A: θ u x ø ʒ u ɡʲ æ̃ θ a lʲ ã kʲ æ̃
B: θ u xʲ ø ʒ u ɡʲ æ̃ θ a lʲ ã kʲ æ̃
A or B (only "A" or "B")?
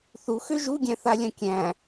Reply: A